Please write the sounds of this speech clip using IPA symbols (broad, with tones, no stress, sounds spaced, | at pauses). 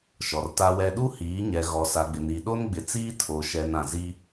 ʃ ɔ˨ r t a˦ w ɛ˦ ɗ u˦ h iː˨˦ ɲ ɛ˨ ɣ ɔ˨ s a˨ ɡ͡b ɪ˨ n i˨ ɗ o˦ n ɡ͡b ɪ˨ t͡s iː˦ tʰ o˨ ʃ ɛ˨ n ã˨ z i˦